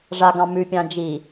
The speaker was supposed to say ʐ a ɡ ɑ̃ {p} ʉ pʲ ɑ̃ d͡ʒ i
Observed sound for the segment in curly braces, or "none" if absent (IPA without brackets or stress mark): m